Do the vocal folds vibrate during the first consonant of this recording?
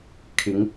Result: no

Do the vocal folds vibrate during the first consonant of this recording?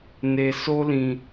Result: yes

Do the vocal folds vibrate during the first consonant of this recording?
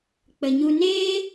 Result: no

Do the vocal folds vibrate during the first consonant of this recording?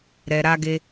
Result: yes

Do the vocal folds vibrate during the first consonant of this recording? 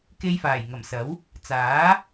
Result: no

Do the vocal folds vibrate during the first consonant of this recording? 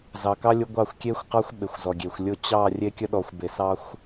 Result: yes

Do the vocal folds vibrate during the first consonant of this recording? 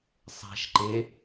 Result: no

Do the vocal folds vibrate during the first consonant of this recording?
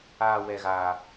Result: yes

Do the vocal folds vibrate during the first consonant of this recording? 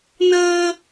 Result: yes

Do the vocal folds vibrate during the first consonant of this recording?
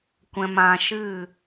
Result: no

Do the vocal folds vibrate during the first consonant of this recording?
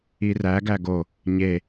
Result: yes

